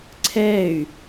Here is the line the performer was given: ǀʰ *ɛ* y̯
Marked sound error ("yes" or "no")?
no